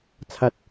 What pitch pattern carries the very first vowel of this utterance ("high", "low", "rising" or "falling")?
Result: rising